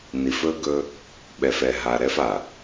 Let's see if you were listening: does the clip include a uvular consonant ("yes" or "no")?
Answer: no